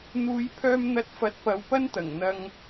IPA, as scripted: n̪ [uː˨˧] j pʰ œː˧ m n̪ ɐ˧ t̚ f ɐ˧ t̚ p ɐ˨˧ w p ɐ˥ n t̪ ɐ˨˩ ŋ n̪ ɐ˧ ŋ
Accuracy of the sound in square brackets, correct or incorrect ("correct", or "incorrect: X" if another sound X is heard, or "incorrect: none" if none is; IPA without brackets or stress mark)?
correct